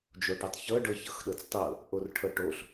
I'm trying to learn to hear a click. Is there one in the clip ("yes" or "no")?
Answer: no